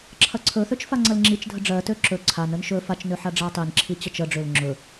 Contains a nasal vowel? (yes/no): no